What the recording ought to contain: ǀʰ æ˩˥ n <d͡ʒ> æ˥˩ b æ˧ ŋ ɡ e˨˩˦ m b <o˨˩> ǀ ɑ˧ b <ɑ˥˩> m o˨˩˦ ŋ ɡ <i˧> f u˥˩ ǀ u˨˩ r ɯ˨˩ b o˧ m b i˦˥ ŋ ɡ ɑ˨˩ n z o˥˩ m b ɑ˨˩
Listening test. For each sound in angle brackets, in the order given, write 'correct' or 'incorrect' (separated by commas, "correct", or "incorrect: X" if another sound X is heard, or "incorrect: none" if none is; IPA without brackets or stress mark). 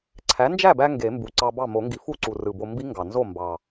correct, incorrect: u˨˩, correct, incorrect: i˨˩˦